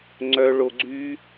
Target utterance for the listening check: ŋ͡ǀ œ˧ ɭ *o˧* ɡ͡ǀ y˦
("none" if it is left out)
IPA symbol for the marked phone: o˧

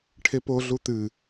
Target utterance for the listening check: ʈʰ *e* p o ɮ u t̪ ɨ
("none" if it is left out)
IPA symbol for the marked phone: e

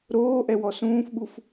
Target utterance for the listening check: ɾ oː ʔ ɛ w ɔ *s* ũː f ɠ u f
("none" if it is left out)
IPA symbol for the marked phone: s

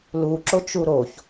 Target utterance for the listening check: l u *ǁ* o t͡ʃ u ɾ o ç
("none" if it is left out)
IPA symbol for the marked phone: ǁ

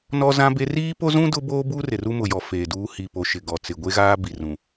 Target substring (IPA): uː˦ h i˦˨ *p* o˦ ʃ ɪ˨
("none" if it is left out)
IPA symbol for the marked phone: p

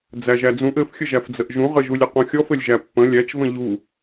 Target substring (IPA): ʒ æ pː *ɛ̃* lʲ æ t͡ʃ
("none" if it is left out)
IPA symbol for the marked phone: ə̃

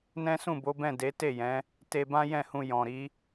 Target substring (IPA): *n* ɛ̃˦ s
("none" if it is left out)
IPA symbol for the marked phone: n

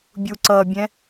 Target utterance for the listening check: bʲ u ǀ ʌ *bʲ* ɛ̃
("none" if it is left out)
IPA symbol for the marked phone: bʲ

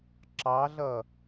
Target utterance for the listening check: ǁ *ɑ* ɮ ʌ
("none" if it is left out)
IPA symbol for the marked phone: ɑ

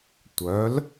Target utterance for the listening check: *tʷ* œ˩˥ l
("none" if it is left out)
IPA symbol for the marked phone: tʷ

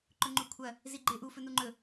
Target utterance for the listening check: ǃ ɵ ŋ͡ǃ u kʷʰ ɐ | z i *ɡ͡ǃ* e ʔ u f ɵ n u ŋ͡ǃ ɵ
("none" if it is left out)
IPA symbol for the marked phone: ɡ͡ǃ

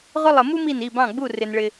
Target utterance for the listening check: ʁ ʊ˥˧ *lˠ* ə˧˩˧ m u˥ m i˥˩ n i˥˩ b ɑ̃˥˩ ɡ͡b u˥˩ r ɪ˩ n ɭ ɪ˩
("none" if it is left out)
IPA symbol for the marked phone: lˠ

